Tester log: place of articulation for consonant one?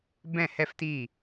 labial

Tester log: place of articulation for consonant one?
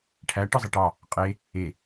retroflex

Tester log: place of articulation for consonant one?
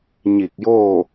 palatal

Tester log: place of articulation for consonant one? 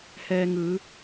glottal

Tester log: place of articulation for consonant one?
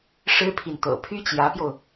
retroflex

